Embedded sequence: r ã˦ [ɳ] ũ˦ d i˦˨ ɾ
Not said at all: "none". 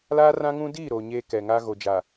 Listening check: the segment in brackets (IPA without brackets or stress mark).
ŋ